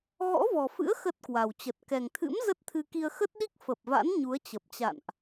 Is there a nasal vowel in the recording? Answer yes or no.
no